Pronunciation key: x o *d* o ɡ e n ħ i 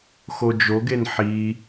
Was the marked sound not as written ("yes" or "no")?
yes